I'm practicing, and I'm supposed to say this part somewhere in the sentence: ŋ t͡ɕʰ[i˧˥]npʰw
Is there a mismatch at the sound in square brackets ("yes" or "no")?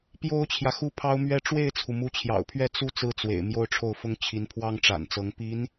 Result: no